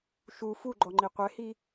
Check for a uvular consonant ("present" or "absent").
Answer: present